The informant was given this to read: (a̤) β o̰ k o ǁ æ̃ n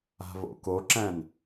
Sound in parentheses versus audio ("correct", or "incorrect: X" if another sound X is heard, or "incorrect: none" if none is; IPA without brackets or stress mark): correct